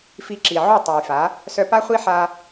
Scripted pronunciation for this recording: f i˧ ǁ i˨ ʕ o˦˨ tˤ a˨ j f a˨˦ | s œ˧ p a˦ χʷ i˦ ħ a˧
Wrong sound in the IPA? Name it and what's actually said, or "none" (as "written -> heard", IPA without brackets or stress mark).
none